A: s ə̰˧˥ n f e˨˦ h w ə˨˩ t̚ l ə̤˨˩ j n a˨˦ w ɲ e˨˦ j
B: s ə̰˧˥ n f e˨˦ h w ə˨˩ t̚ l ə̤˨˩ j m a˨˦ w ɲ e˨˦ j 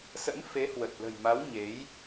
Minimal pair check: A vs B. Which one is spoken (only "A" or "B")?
B